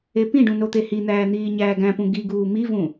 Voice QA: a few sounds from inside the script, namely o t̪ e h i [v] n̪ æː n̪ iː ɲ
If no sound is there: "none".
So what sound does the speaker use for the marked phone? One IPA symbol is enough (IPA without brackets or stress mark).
none